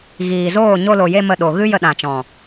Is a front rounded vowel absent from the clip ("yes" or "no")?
yes